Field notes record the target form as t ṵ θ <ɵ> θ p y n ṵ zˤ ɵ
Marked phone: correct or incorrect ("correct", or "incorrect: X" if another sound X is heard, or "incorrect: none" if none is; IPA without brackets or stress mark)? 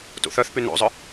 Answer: incorrect: œ